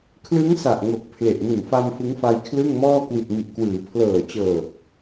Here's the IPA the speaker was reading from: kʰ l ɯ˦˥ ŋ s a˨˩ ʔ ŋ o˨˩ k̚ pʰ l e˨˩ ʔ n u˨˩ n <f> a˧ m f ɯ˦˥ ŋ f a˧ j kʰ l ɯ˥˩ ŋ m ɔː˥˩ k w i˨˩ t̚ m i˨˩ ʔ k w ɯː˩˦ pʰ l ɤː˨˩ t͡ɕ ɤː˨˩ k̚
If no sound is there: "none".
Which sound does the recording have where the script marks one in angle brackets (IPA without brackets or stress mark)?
f